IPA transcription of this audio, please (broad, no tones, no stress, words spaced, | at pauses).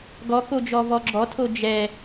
ɡɔkod͡ʒɔ vɔɡ͡ǁɔtʰo d͡ʒɛ